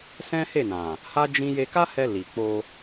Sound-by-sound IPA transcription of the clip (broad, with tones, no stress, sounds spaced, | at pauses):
s ɛ̃˦ h e˦˨ n ã˨ | h a˦ d͡ʒ ĩ˦ j e˧ k a˦ h ɛ˧ l i˨ k͡p o˧